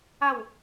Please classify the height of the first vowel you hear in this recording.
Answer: low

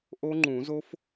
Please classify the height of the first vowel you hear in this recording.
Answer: mid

